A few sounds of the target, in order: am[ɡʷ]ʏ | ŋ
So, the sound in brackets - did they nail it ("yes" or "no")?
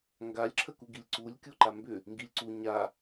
no